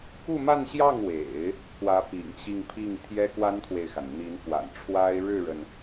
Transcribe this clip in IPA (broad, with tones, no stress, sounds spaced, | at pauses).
k u˥˧ m a˥˧ n ɕ j ɑ˥˩ ŋ w ḛ˨˩˦ ɪ̯ | k w ä˧˥ p ḭ˨˩ ŋ ɕ i˥˧ ŋ pʰ i˥˩ ŋ t̪ʰ j ɛ˥ k w a˥ n kʰ w e˨ ɪ̯ x a˩ n n̪ i˧˥ n f w a̰˨˩ n ʈ͡ʂʰ w a˥ ɪ̯ ɻ ɻ̩˥˩ ɻ ə˩ n